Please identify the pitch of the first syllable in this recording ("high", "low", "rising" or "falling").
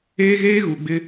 high